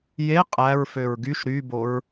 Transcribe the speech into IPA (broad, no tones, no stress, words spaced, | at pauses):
je qʼæɹføɹ ɡyʃ ɾyboɹ